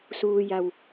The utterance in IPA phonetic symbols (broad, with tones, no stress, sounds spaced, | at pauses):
s uː˧ j a˧˩ w